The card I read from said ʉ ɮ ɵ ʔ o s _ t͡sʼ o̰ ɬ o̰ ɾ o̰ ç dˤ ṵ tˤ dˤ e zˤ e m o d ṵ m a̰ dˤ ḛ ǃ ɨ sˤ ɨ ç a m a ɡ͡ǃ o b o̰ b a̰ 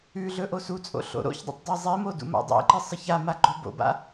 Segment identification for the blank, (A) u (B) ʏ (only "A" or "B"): A